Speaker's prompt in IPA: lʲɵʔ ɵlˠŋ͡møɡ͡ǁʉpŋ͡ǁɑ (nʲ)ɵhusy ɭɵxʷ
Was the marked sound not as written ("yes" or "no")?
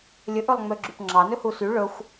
yes